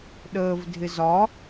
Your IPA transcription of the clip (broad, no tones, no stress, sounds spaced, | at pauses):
ɗ əː v dʱ ɪ z ɒ